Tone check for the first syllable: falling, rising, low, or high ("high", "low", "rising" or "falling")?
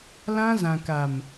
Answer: high